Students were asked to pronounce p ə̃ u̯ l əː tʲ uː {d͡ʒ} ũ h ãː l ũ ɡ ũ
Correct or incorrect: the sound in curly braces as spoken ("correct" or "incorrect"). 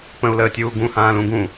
incorrect